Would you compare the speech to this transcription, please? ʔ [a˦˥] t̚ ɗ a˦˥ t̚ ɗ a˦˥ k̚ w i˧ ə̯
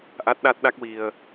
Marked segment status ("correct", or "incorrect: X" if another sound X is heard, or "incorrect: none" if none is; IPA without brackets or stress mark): correct